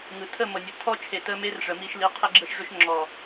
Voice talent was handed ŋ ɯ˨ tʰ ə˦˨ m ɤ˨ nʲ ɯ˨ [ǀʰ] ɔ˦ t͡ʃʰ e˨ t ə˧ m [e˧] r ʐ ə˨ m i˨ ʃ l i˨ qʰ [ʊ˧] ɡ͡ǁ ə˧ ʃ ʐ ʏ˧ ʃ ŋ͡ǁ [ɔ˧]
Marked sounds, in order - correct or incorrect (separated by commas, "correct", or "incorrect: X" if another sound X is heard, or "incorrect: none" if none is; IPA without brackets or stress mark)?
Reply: incorrect: tʰ, correct, incorrect: ə˧, incorrect: ɔ˨